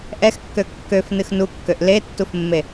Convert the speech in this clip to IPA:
ʔ ɛ x kː ø kː ø f n ɨ x n u kː ø ʔ l e tː u f mː e

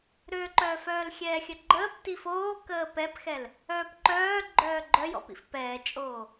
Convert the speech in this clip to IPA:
ɾ ø ǃ œː f œː l xʲ ɛː xʲ ə ɡ͡ǃ əː p t i f oː k əː p ɛ p x ɛ l | œː p ǃ œː ɡ͡ǃ œː ɡ͡ǃ œ j ɔ̰ p ḭ f p ɛː t͡ʃʼ oː

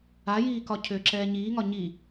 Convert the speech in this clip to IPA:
a j iː k ɒ cʰ ʏː ǁ ɛː ɲ iː ŋ ɒ ɲ i

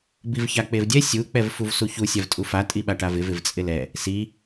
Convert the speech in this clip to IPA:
b i v ç a k͡p e v dʲ ɛ sʲ u k͡p ɛ v f u v s u ç u sʲ a v tʼ u f a tʼ i ɓ a ʈ a v ɪ v ɪ v t͡sʼ ɪ l ɛ | s i

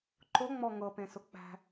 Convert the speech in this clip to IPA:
ǃ ʊ ŋ͡m ɔ ŋ ɤ p ẽ s ʊ k͡p æ̤

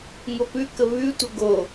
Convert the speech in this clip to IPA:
ŋ o p ʉ k ə β ʉ tʷ ə ɡ o

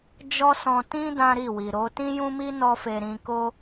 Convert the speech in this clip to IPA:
d͡ʒ ɔ˦ s ɔ̃˧ t ĩ˦ d ã˦ ɾ i˦˨ w i˨ ɾ o˨˦ t ĩ˦ j ũ˦ m i˦ n ɔ˦ f e˧ ɾ ĩ˧ k o˦

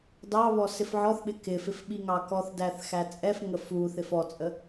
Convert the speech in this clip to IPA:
d ɑ β ɔ s ɪ f ʕ ɔ θ ɓ ɪ k ɪ f ɪ f ɓ i ŋ ɑ k ɔ θ d æ θ x æ t͡sʼ ɛ f ŋ ə f u θ ɪ f ɔ t͡sʼ ə

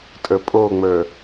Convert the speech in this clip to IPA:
tʼ ə˞ pʼ o ŋ͡m ə˞

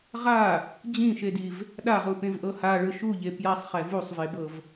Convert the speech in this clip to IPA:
ʁ a | d͡ʑ ĩ ʃ e d i v | ɗ a ʁ u p ẽ v ʔ ɤ h a ɭ ɯ ʃ u ʎ e p j a sˤ χ ɛ v u sˤ v e b ɤ v

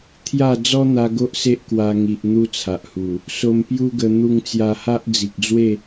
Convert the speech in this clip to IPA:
t̪ʰ j a˥˧ d͡z ɔ˦ n̪ a˧ ɡ o˦ ʔ s e˦ ʔ k w a˧ ŋ i˨ ʔ n̪ u˦ t͡sʰ a˨ ʔ h u˨˩ | s o˧ m p j u˦ ɡ ə˧ n̪ u˧ ŋ t͡s j a˧ h a˦ ʔ d͡z i˨ k̚ d͡z w e˥˧

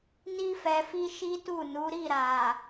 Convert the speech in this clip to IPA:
n i˧ f ɛ˨ f i˧ ʃ i˦ t u˦˨ n u˨˦ ɾ i˦˨ ɾ a˨

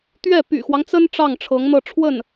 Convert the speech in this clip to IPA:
t̪ ɥ ɛ˥˩ p y̰˨˩ x w ɑ˦ ŋ t͡s ə˥ n ʈ͡ʂ ɑ˥˩ ŋ ʈ͡ʂʰ ɤ˧˥ ŋ n̪ ɤ˥˧ ʈ͡ʂʰ w ə˥˩ n

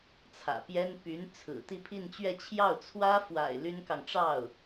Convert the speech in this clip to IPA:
t͡sʰ ä̰˨˩ p j ɛ˥ n p y˧˥ n t͡sʰ ɹ̩˨˩ t̪ i˥˧ pʰ i˥˧ n t͡ɕ ɥ ɛ˥˧ t͡ɕʰ j ɑ˥˩ ʊ̯ t͡sʰ w ä˥ f w a̰˨˩ ɪ̯ l y˥ n k ɑ˨ ŋ ʈ͡ʂ ɑ˥˩ ʊ̯

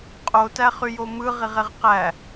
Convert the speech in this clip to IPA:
qʼ o t æ χ y j o m ɯ ʁ i ʁ e ʁ q æ

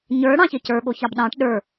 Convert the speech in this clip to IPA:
ɲ ə˞ ɽ ɑ̃ ç e c ə˞ ɠ o ç ɑ b ɗ ɑ̃ ʈ ɗ ə˞

